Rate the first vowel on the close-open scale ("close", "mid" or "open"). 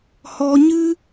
mid